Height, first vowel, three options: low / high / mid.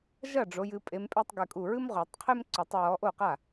low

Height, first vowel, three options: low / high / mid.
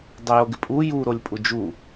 mid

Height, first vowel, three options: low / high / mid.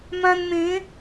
low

